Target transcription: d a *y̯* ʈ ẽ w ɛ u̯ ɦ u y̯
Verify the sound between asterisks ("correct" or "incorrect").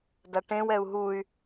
incorrect